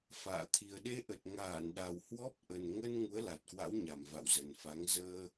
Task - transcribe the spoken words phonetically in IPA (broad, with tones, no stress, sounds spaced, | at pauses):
f a̰ː˧˨ t̪ʰ i˨˩ ə̯ ɗ e˧ ʔ ə˨˩ t̚ ŋ aː˧˩ n ɗ a˨˩ w h w ɔ˦˥ p̚ ʔ ə˨˩ n ŋ ə˧ n ŋ u˨˦ ə̯ l a˨˩ t̚ k w a̰˧˥ w ɲ a˨˩ m v a̰˧˨ w z ə˨˩ n f a˨˦ ŋ z əː˧